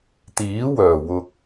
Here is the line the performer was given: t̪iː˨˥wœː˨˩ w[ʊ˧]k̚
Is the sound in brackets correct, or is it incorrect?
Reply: correct